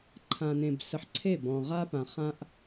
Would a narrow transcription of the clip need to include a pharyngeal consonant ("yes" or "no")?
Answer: yes